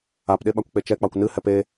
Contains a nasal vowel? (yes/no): no